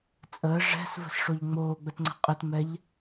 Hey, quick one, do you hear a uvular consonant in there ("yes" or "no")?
yes